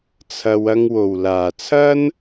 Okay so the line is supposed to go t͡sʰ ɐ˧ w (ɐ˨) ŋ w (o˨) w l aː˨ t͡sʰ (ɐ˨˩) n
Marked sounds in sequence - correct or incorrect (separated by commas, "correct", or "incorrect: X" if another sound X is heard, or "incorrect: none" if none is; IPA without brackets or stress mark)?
incorrect: ɐ˧, correct, incorrect: ɐ˥